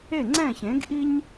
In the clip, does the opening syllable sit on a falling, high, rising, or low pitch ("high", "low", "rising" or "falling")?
falling